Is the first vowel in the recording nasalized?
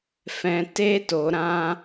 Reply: yes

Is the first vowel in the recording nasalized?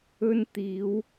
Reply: no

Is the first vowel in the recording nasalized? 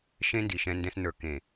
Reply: yes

